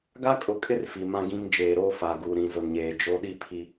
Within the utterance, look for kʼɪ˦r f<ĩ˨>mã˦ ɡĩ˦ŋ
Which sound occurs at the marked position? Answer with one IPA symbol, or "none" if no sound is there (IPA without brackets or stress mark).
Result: i˨